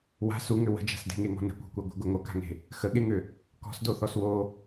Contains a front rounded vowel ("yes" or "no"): yes